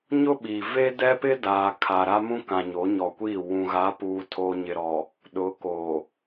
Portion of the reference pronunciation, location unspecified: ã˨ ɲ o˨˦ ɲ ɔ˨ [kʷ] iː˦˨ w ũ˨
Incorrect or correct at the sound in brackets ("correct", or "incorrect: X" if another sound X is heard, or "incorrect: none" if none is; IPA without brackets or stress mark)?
correct